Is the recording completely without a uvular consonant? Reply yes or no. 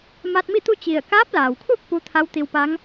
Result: yes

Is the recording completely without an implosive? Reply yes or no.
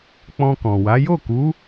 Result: yes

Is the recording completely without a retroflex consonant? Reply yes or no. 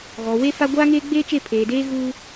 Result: yes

